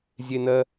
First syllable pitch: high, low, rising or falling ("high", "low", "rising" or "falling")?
high